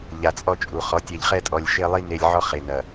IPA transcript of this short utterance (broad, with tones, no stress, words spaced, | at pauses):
ʎa˨t͡sʼɔ˦t͡ʃʼu˨ χɔ˨˦tʲɛ˨ʎχɛ˦tʼɔ˨lʲ ʃe˦lˠi˦ ne˦lʲ ʕɔ˦χe˨ nɐ˨